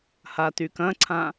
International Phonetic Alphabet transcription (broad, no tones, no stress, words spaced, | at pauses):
hatykɐ̃ǀʰã